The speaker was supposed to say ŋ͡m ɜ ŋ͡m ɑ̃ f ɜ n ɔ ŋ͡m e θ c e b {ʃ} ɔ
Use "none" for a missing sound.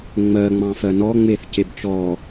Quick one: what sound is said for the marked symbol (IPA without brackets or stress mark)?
t͡ʃ